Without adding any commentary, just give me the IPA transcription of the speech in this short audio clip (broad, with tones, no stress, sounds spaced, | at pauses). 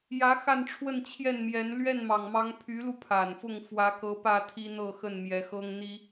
j ä˧˥ x a˥˧ n ʈ͡ʂʰ w ə˥˧ n t͡ɕʰ j ɛ˥˩ n m j ɛ˧˥ n l ɥ ɛ˥˩ n m ɑ˨˩ ŋ m ɑ˧˥ ŋ pʰ y˧˥ l u˧ pʰ a˨˩ n f ʊ˥˩ ŋ f w ä˧˥ k ɤ˧˥ p ä˥˩ t̪ʰ i˥ n̪ ɤ˥˧ x ə˥˩ n m j ɛ˧˥ x ɤ˥ ŋ n̪ i˥